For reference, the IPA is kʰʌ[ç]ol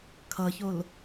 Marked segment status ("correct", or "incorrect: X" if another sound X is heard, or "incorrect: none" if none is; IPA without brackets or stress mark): correct